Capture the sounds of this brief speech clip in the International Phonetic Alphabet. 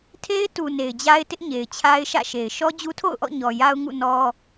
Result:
tʰ e˦ ɪ̯ t u˨ n e˨ ɪ̯ d͡ʑ a˦ ɪ̯ t ɪ˦ ʔ ɲ e˨ ɪ̯ t͡ɕʰ a˦ ɪ̯ ʃ ä̰˦˨ ʃ e˨ ɪ̯ ʃ ɔ˦ d͡ʑ u˦ tʰ o̰˦˨ ʊ̯ ʔ ɔ̰˦˨ ɲ ɔ˨ j a˦ ʊ̯ ŋ ṵ˦˨ n ɔ˦

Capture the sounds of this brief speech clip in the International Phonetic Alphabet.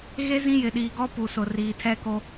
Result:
ɣ e˦ z ĩ˦ j ɪ˨ ɗ iː˨ ɡ ɔ˦ p u˨ s ʊ˨ r iː˨ tʰ ɛ˦ k o˦

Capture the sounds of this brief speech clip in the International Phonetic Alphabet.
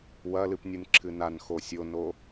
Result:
w ɐ l ɨ p nʲ ɨ n ǁʰ ɨ n a n x o sʲ o n o

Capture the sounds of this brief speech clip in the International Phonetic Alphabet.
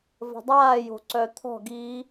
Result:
v ə̤ dˤ aː j o̤ ǀ œ t̪ʰ ɔ̤ ɡ i

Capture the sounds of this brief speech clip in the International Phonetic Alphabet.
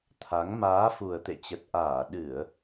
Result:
t̪ʰ a˨˦ ŋ m aː˨˦ f u˨˩ ə̯ t̪ ḛ˧˨ t͡ɕ ə˨˩ t̚ ʔ aː˧˩ ɗ ɨ˧˩˨ ə̯

